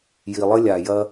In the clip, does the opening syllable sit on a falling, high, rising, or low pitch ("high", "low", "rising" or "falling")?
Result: low